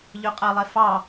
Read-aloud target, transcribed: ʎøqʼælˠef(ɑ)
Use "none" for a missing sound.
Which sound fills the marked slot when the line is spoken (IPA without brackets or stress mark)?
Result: ɑ